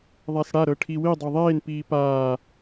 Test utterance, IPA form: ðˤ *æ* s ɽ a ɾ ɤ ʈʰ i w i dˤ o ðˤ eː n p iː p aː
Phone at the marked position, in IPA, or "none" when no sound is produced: a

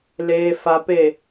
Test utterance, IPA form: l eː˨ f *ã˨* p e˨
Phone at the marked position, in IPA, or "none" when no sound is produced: a˨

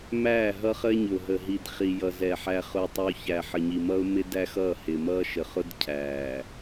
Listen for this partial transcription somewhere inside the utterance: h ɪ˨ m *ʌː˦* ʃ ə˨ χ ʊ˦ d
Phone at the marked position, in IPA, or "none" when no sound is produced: ʌː˦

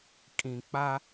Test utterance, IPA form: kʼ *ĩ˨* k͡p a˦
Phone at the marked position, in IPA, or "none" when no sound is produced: ĩ˨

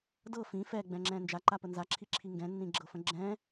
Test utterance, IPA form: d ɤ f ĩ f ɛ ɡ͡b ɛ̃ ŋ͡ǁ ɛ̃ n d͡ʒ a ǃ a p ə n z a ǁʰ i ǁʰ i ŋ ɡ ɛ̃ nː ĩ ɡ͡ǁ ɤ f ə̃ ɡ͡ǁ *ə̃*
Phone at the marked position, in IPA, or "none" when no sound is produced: ɛ̃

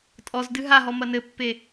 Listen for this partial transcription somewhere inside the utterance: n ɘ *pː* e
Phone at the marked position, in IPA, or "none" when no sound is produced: pː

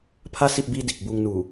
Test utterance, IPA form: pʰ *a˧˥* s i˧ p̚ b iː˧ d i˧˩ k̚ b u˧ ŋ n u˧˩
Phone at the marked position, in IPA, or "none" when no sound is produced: a˧˥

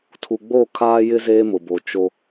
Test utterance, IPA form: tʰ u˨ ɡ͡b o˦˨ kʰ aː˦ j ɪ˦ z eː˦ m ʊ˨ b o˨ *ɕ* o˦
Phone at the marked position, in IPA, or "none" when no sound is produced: t͡ʃ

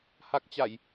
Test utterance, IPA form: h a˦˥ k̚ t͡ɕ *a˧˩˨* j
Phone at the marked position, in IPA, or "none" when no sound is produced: a˧˩˨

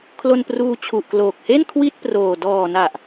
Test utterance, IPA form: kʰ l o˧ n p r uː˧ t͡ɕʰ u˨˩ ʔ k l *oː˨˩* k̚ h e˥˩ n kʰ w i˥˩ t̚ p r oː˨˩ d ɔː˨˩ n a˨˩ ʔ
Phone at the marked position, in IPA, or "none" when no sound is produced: oː˨˩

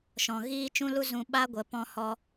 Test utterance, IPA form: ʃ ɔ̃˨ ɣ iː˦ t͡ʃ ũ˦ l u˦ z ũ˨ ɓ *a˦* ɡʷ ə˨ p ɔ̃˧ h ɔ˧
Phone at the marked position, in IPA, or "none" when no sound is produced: a˦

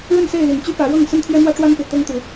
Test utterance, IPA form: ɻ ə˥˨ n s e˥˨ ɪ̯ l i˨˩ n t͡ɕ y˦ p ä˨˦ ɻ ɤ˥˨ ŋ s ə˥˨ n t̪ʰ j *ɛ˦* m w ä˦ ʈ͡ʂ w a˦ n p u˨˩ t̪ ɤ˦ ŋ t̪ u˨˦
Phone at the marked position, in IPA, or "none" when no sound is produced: ɛ˦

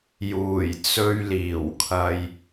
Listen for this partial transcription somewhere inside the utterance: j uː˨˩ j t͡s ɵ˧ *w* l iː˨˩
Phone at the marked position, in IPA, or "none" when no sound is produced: ɥ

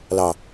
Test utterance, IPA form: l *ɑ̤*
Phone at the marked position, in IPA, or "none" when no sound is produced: ɑ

